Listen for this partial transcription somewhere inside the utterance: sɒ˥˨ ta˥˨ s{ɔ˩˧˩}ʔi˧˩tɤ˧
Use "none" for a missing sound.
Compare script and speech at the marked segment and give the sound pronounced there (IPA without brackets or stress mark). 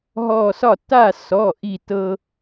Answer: ɔ˩˧˩